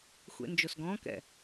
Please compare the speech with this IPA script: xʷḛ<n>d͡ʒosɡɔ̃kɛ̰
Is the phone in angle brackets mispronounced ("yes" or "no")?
no